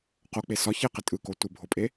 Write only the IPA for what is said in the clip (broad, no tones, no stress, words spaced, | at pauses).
qok͡pe sɒ çeqɪ tʼɯko tʷɪbʱopʼe